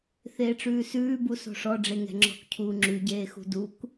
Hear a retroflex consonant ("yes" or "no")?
yes